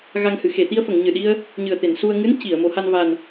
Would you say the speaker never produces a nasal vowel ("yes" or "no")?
yes